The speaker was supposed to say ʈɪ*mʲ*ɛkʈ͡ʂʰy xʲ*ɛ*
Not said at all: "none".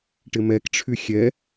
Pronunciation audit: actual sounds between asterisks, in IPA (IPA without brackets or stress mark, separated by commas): m, ɛ